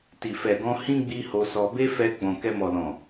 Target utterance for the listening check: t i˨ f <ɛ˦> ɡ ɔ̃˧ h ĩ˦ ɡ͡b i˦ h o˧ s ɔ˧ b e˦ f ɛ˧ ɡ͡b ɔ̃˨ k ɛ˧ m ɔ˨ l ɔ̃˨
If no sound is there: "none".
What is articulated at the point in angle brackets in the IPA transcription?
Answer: ɛ˨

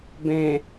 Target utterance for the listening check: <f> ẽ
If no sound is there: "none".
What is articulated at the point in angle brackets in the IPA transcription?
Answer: b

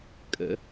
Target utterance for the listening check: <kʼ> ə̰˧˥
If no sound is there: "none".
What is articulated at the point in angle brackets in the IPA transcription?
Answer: kʼ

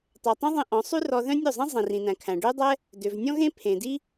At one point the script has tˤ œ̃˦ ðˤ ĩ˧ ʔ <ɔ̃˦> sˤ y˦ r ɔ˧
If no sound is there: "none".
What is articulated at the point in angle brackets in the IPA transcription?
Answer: ɔ̃˨˦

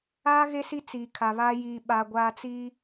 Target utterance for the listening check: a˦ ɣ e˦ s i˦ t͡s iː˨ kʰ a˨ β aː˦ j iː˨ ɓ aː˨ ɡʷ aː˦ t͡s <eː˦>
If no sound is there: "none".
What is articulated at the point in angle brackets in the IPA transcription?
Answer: iː˦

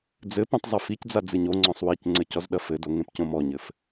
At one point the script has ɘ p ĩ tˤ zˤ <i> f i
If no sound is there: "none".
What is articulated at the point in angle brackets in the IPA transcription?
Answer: ɨ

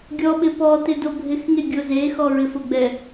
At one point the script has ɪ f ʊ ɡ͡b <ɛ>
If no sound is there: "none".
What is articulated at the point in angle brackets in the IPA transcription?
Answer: ɛ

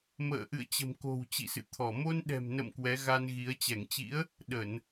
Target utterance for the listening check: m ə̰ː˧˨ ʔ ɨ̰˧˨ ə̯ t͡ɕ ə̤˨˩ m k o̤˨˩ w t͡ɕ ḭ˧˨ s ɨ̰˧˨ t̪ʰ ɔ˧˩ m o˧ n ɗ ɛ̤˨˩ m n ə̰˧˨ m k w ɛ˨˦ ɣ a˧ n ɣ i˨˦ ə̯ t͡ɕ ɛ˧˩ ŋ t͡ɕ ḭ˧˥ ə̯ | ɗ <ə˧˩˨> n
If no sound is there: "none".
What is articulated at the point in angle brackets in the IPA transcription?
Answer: ə˧˩˨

